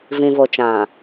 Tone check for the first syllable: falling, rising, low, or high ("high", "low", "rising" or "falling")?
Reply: low